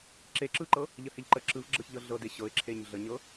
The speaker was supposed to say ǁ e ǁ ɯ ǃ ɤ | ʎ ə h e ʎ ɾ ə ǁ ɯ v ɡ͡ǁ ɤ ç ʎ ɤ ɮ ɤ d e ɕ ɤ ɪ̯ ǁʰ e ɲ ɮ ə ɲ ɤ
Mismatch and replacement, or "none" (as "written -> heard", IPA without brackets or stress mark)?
ɾ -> ǃ